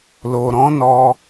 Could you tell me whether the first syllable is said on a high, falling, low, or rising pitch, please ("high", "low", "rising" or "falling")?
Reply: low